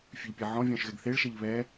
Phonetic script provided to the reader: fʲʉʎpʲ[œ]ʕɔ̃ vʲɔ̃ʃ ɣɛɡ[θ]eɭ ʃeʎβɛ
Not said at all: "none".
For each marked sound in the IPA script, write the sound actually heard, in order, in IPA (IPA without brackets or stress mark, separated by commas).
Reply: ɛ, θ